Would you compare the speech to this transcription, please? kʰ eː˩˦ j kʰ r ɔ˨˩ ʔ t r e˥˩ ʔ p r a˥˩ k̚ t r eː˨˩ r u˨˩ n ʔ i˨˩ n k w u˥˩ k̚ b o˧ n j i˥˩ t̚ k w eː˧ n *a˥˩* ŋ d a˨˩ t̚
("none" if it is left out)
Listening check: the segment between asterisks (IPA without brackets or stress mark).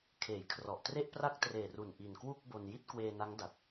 a˦˥